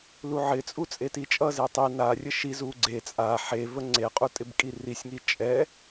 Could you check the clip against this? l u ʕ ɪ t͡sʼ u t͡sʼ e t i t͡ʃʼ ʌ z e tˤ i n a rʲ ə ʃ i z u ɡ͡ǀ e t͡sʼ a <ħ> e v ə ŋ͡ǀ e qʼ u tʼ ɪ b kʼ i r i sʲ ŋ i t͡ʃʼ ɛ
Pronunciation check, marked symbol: correct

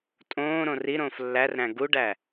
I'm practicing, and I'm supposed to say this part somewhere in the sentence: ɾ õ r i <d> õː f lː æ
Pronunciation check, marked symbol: incorrect: ɾ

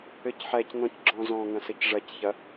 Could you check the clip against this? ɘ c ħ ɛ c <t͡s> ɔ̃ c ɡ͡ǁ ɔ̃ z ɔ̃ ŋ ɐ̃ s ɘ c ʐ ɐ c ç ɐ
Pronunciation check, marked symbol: incorrect: n̪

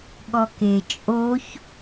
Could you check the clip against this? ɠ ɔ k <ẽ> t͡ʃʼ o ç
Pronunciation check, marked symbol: incorrect: e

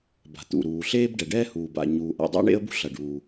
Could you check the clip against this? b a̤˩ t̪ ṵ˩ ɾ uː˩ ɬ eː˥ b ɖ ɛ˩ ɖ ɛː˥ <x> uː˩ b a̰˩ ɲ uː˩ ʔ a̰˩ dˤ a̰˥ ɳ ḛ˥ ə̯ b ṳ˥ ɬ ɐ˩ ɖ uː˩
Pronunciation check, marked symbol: incorrect: h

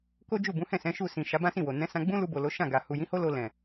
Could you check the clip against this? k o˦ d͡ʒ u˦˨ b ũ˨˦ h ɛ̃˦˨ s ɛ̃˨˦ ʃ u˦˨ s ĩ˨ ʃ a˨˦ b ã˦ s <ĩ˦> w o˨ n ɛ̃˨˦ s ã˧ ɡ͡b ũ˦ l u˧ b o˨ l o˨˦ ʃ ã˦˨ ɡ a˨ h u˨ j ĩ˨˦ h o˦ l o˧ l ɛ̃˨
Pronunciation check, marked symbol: incorrect: ĩ˦˨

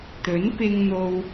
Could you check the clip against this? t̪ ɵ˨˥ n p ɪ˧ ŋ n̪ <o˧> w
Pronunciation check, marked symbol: correct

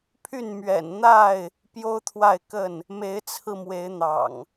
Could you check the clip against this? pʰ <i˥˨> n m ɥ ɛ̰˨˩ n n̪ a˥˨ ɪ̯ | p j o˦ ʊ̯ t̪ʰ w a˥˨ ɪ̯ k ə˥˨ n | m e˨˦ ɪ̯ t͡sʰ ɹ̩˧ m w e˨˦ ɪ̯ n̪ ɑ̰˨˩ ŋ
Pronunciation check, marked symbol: incorrect: y˥˨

